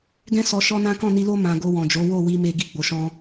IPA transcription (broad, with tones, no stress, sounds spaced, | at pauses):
ɡ ɛ̃˦ s ɔ˧ ʃ ɔ˦ n ã˦ k ɔ̃˦˨ n i˧ l o˦ m ã˧ ɡ o˧ w ɔ̃˨ d͡ʒ o˨˦ w o˦˨ w i˧ m e˧ ɡ i˦ ɡ͡b o˧ ʃ ɔ̃˦